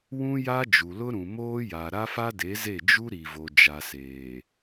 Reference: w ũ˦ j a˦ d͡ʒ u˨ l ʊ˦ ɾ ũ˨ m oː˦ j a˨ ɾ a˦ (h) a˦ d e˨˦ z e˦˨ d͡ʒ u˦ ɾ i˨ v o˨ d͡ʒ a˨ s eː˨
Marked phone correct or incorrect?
incorrect